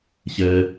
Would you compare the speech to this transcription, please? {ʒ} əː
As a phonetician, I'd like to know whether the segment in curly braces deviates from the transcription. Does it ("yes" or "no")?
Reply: yes